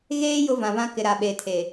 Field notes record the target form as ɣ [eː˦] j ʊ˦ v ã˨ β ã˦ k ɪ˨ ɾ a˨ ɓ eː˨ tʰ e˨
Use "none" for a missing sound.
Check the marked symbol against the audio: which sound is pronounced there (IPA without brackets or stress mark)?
eː˦